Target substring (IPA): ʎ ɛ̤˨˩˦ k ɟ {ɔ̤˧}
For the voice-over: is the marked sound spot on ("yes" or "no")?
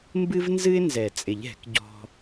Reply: yes